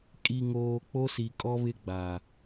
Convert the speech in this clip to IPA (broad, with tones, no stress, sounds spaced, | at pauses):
kʼ i˨ ŋ oː˨ k͡p o˦ s i˨ kʼ ɔ˦ β ɪ˦ ɡ͡b a˨